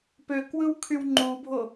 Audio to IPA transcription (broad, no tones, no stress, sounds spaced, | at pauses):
p ø k w ɯ w kʰ y w ŋ͡ǃ u bʱ o